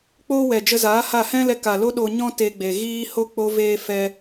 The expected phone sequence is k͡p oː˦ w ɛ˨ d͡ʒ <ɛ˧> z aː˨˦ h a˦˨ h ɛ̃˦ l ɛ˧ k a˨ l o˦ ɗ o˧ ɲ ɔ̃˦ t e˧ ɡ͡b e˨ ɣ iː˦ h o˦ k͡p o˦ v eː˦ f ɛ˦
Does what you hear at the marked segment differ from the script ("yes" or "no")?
yes